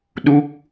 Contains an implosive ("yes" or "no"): yes